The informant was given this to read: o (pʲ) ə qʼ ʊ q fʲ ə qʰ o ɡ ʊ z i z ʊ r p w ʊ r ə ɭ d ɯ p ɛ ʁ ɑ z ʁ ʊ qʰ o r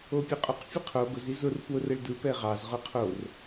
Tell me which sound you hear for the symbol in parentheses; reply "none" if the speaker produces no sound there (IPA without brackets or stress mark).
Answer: pʲ